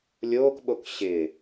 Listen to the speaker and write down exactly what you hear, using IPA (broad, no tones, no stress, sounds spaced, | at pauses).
lʲ oː k ɓ o k ɕ ɪ